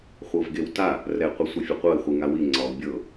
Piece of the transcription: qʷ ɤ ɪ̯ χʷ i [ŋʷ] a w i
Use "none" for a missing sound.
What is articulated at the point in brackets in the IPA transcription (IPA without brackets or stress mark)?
ŋ